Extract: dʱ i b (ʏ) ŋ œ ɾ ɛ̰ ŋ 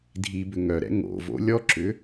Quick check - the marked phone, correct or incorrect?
correct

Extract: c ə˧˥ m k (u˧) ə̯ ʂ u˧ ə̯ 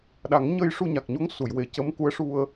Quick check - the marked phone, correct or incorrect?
incorrect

